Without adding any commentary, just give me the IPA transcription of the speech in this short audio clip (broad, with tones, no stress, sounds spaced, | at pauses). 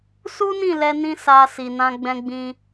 s u˦ n ĩ˦˨ l ɛ˧ n ĩ˧ s a˧ s i˨ n ã˧ ɡ͡b ɛ̃˧ ɡ͡b ĩ˧